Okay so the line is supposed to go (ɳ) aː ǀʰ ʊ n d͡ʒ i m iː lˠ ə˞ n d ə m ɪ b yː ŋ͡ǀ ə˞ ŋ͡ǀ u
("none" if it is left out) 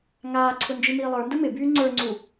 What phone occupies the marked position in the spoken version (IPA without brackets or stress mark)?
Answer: ŋ